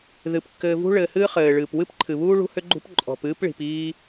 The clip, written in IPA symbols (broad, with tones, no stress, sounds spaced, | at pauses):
ð ɨ˩ p kː ɘː˨ v ṳ˥ ɭ ɘː˨ h ɨː˦ χ ɘː˩ ɭ ɨː˩ p w ɨ˥ p ǃʰ ɨ˩ β uː˥ ɭ ṳ˦ h ʏ˦ ɡ͡ǃ ṳ˦ p ǃʼ ɔ̤˨ p ɨː˥ p ɭ i̤˨ p iː˦